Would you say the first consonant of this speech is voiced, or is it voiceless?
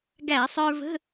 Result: voiced